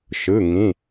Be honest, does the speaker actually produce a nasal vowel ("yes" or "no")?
yes